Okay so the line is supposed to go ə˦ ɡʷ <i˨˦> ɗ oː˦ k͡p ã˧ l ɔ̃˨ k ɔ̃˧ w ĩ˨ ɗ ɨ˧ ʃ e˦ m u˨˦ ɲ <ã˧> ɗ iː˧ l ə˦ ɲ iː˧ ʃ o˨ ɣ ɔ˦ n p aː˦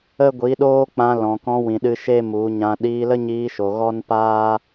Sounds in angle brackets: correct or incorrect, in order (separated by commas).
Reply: correct, correct